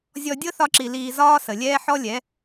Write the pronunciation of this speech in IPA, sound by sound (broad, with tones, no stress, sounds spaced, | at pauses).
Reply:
zʲ ɔ˧ dʲ ɤ˦ θ ɒ˦ ǁ i˧ l iː˧ z ɒː˦ s ə˨ lʲ ɛː˦ ħ ɔ˦ lʲ ɛ˨˦